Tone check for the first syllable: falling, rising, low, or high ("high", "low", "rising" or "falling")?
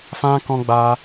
high